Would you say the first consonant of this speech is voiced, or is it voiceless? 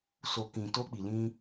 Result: voiceless